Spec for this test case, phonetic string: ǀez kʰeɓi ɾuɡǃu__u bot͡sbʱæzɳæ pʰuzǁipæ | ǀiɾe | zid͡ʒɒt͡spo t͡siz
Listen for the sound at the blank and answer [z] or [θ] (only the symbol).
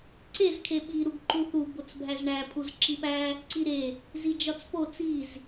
θ